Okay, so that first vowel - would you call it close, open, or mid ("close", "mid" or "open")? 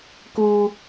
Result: close